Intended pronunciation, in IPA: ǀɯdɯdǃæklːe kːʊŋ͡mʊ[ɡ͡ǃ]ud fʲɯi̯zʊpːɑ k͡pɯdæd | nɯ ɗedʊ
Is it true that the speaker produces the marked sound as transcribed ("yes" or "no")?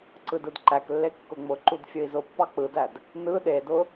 no